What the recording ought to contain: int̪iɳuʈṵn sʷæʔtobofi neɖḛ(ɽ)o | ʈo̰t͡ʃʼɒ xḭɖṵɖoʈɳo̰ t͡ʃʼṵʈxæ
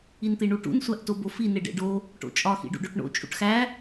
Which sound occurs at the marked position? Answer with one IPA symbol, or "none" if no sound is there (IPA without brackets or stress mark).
ɖ